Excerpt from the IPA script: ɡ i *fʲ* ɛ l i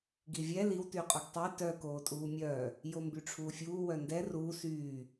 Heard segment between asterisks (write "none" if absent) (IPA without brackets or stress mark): vʲ